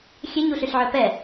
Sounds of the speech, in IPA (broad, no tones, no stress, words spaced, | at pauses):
xʲeɲuɬyɬʕœ pɛ